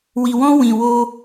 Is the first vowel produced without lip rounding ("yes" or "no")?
yes